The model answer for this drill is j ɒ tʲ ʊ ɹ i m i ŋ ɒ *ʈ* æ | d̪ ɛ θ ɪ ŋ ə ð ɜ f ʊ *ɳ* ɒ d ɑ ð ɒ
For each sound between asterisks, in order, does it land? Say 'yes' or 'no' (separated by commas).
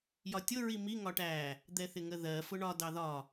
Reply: yes, yes